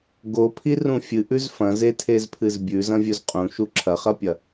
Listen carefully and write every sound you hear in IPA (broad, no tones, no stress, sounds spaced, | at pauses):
ɡ o pʰ i r ũ fʲ ɨ ʔ ʉ z f ɐ̃ z e tʰ e z pʰ ɨ z bʲ ʉ z ɐ̃ vʲ ɵ z qʼ ũ ʃ u ǁʰ ɐ χ ɐ pʲ ɐ